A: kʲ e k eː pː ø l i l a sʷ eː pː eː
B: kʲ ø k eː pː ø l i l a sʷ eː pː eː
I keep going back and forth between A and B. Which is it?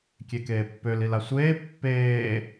A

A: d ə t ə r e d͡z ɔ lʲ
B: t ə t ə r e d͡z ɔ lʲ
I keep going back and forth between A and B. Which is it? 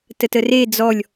B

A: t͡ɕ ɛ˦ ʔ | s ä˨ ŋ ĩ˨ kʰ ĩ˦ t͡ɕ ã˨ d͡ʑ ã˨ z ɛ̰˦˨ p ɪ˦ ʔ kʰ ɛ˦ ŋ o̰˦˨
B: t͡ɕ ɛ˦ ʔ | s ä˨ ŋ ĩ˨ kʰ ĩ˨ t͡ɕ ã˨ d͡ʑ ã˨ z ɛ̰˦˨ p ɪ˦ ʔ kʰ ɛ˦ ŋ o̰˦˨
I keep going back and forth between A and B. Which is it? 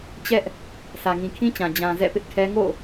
A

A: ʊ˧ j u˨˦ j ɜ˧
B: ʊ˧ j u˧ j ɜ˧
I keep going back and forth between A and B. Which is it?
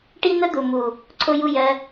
B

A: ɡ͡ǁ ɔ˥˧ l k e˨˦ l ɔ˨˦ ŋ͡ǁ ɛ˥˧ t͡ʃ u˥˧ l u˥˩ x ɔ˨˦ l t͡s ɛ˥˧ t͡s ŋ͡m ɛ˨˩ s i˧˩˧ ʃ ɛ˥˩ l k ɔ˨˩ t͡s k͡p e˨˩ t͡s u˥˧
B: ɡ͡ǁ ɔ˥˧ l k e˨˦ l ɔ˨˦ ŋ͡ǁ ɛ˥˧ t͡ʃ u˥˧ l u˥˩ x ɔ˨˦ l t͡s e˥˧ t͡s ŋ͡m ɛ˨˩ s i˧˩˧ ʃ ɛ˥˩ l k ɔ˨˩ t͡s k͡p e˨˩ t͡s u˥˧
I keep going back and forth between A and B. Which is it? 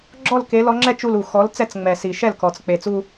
A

